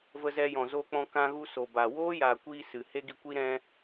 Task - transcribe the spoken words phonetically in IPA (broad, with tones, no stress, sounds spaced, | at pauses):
v ə˧ z ɛ˧ j ɔ̃˨ z oː˧ k͡p ɔ̃˧ k ã˧ ɣ u˧ s o˨ b a˨ w oː˦ j a˨ kʷ i˧ s ɨ˨ h e˦ ɡ i˧ kʷ i˦ ɾ ɛ̃˦